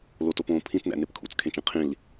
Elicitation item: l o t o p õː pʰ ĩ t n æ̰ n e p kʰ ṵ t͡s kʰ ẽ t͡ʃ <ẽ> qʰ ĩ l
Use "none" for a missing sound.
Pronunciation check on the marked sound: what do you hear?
ẽ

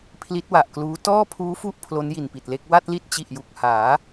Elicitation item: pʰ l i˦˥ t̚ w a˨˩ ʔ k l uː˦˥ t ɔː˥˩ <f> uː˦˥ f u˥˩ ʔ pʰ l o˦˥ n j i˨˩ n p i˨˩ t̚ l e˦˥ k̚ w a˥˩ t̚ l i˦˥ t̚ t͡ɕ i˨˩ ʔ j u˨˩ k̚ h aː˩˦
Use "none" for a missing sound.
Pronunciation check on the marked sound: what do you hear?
pʰ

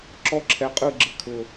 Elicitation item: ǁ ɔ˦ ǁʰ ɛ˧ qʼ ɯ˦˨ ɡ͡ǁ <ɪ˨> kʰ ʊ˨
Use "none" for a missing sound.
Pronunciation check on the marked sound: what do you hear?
ɪ˨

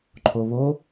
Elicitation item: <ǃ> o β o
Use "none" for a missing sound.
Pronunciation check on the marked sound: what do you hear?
ǃʰ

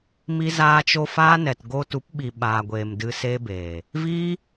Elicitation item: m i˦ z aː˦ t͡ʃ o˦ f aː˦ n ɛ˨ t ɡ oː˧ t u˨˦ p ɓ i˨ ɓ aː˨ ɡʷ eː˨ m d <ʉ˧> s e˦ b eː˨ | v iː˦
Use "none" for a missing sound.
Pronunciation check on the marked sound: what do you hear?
ɨ˧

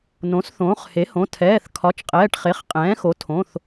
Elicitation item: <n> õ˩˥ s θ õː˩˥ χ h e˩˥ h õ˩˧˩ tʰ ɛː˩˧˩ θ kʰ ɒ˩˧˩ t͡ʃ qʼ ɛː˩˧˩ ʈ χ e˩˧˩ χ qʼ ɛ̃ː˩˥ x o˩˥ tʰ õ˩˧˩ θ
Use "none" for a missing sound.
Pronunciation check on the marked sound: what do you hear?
n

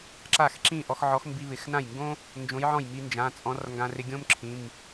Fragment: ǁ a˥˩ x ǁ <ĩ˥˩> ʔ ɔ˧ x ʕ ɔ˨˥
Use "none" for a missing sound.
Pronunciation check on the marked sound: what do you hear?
ĩ˥˩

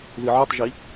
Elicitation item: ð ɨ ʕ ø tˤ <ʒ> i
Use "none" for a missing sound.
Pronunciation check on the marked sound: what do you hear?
ʒ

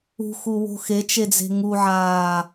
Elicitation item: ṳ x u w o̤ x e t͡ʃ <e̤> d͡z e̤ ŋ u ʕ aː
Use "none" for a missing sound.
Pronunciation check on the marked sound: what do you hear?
e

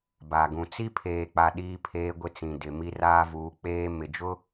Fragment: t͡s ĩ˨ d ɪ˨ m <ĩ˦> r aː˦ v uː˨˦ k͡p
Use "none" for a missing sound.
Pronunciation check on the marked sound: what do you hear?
i˦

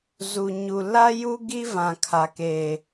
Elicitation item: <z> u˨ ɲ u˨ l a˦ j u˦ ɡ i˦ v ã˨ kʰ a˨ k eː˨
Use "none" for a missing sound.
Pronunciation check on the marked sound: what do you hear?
z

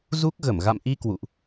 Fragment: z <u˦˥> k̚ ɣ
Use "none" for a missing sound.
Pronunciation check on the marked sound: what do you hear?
u˦˥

